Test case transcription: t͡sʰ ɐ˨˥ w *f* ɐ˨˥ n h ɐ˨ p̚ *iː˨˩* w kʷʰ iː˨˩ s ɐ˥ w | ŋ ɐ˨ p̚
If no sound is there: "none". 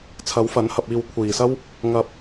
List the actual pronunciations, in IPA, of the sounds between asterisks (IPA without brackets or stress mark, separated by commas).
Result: f, iː˨